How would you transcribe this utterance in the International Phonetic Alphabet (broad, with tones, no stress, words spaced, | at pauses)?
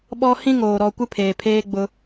ɓɔ˦ hĩ˦ŋoː˨ ɾɔ˨kʷɪ˦ pʰeː˨pʰeː˦ ɡ͡bʊ˦